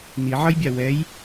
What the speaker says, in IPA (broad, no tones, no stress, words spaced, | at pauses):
niʕʌjbʲa wɛj